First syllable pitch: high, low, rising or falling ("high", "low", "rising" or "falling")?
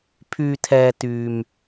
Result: low